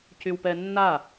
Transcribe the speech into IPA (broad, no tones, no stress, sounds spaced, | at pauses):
c y w p ɛ nː a